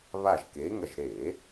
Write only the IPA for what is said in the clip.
β a˦˨ ʒ k e˨˥ ŋ ɐ˦˨ ʒ ɾ e˧˩˧

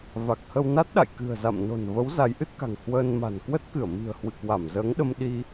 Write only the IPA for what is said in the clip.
v a˨˩ k̚ h ə˧ w n a˦˥ t̚ ɗ a̰˧˨ j k ɨ̤˨˩ ə̯ z a̰˧˨ m n o̤˨˩ n v ə˨˦ w z a˨˦ j ʔ ɨ˦˥ t̚ k a̤˨˩ ŋ h w əː˧ n m a̤˨˩ n k w ə˦˥ t̚ k ɨ˧˩ ə̯ m i̤˨˩ ə̯ h w ɨ̰˧˨ k w a˧˩ m z əː˨˦ ŋ ɗ ə˧ m ɗ i˧

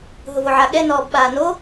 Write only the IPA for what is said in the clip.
ɦ ʊ v o ʕ a ɠ ɛ n ɔː b ɓ aː n o

